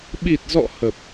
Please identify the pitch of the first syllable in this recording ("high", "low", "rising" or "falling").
low